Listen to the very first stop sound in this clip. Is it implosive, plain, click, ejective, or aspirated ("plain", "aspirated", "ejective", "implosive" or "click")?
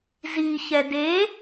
plain